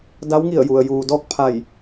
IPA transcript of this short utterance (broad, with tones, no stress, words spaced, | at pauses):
da˧˥wŋi˧˩ə̯ ju˩ə̯ juː˩dɔː˥˨k̚ pʰa˧˩j